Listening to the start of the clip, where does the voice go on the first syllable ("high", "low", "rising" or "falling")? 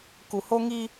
low